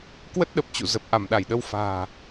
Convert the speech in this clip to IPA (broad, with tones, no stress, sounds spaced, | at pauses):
k w ə˦˥ t̚ ɗ ə˨˩ p̚ t͡ɕ ṵ˧˨ z ə˨˩ p̚ ʔ a˧˩ m ɗ a˧˩ j ɗ ə˧ w f a̤ː˨˩